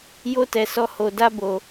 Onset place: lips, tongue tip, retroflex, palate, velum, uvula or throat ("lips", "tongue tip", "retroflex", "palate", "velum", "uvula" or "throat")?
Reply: palate